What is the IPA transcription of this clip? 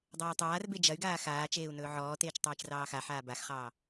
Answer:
dˤɐːi̯tˤaːrbe d͡ʒɐy̯ɡaː xaː t͡ʃeːu̯nɵːʕɔːteːt͡ʃ tˤeːt͡ʃrɑːxaħaː baxχɑː

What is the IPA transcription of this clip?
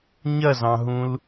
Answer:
ɲɐzɑ̃ɦũl

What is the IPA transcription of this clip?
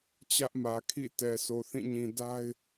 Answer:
t͡ɕä˦ʔmä˨kʰḭ˦˨ tɛ˨so˨θĩ˦˨ɲĩ˨ da˦ɪ̯

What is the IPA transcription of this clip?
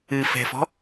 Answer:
ɨfɛ̤fɔ̤

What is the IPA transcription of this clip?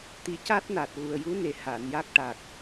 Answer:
t̪i˨˩caː˦˥t̚naː˨˩t̚ ɣu˨˩ə̯ju˧˥ ne˨˩ haː˨˩˨nja˦˥k̚ʈa˨˩k̚

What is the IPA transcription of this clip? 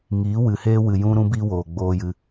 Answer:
ŋiː˨˦wɨ˨heː˦ wɨ˨jũ˦ ɾũ˦bi˦ woː˨ɡ͡boː˦jɨ˧

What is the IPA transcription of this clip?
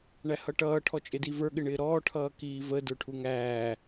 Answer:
ɳæhʌʈʌː ʈʰɔt͡ʃʼɪdivə˞ ɠɪɳɪːɾɔː ʈʰʌːkiːvə də˞ʈʰuŋæː

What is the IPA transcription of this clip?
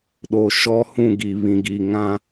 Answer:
ɗo˨ʃɔ˦hũ˦˨ɡi˨ βĩ˨ɡi˨ ŋã˦

